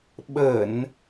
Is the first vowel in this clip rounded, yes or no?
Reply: no